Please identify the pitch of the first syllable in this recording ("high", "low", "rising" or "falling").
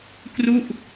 falling